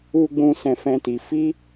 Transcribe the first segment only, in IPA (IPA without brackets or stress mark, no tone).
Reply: u